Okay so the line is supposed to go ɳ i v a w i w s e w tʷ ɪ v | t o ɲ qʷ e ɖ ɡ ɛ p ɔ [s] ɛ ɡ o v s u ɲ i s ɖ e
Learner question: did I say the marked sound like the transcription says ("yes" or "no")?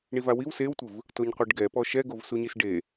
no